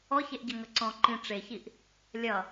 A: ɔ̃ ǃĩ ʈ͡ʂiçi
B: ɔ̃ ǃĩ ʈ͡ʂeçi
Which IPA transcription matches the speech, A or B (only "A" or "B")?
B